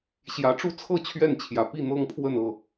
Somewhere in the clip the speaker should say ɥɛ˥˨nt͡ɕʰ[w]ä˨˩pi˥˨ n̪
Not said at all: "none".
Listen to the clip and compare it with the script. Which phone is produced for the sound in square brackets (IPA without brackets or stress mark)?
j